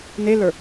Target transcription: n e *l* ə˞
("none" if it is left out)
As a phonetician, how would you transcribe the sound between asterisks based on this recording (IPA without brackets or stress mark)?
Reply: l